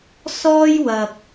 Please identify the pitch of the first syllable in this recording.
high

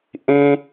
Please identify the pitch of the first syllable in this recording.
high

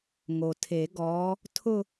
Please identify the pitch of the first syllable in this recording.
low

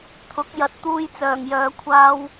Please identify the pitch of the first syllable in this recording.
rising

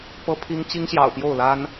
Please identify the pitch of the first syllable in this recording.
high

